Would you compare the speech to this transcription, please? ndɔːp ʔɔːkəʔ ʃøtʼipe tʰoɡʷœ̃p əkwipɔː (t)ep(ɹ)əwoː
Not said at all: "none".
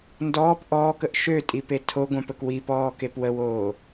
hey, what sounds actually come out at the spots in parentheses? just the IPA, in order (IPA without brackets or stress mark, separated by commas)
k, w